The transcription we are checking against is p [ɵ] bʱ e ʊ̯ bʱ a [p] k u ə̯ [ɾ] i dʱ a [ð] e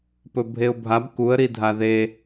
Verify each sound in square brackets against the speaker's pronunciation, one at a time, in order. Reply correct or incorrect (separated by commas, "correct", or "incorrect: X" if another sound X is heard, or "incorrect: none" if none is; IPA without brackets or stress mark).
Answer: correct, incorrect: b, correct, correct